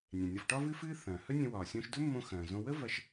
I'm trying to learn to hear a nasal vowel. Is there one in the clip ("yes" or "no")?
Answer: yes